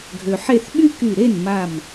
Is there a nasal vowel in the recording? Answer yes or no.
no